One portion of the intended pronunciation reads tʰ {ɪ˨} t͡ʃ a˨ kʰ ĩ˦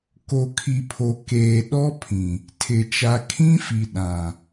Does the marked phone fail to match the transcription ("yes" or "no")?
no